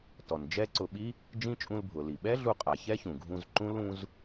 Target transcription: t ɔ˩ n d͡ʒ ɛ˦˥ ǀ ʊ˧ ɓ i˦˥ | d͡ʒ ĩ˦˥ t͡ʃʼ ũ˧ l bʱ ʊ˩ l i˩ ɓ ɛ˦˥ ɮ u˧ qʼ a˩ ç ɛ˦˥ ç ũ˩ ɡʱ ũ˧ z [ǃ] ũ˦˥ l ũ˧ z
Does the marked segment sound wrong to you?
no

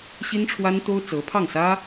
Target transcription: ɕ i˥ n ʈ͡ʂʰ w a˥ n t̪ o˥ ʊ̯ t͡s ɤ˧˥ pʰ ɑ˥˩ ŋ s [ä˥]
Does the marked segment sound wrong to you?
no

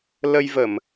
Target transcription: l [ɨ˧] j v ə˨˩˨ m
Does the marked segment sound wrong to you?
yes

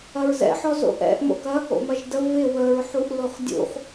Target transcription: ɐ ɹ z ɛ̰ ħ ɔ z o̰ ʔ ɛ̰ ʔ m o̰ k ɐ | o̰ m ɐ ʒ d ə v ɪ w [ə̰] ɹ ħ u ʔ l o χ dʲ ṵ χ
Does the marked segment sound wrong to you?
yes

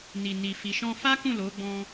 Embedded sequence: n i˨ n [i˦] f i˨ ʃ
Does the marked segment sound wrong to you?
yes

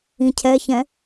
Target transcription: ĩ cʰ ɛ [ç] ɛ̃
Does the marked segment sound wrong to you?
no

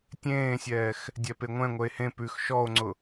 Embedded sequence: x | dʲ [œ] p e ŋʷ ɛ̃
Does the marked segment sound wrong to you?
yes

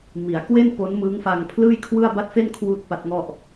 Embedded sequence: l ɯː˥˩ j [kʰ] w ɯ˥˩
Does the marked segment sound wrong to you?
no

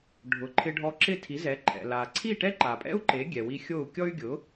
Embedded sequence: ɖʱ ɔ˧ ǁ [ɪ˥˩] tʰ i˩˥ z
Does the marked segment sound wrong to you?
no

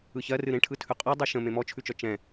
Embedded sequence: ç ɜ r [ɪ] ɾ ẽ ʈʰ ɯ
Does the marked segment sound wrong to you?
yes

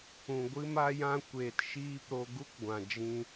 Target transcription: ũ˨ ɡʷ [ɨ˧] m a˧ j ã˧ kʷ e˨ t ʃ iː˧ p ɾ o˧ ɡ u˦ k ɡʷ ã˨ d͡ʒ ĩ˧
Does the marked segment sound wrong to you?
no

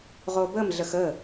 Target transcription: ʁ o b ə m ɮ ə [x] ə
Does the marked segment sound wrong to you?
no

